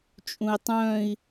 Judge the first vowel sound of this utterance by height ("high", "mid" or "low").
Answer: high